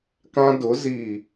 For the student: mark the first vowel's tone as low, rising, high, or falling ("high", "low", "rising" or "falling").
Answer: high